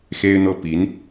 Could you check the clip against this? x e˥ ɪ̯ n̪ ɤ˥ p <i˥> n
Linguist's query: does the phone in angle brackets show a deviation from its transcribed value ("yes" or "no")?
yes